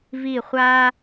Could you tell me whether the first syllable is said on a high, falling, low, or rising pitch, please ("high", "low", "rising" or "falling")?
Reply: falling